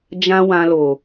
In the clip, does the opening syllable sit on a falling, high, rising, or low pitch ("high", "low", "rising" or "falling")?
high